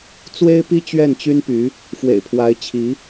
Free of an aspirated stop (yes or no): no